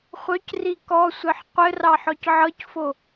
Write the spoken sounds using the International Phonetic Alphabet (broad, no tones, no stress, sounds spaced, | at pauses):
χʷ œ c r i k ɔ sʷ ɘ ħ qʷ ɘ r ɑ ħ ɔ c ʕ ɤ c f o